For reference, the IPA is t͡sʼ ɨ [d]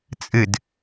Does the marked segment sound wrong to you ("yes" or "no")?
no